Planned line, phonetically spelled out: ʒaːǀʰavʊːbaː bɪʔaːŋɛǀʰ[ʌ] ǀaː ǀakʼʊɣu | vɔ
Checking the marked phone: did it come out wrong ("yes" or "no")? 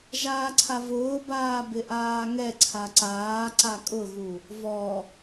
yes